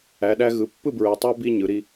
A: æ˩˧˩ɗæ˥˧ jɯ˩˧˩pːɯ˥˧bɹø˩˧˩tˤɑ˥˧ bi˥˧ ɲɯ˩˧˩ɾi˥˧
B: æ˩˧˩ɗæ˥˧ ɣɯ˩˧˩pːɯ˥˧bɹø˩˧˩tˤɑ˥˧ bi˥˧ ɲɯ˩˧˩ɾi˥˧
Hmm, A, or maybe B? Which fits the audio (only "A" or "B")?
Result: B